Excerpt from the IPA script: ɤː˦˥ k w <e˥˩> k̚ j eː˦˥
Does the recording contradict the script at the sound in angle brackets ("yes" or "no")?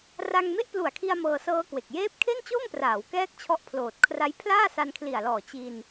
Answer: yes